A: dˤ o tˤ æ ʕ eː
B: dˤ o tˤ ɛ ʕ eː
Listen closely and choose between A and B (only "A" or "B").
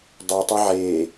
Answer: B